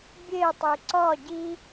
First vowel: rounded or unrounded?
unrounded